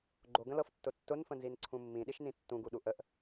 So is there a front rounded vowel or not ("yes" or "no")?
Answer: no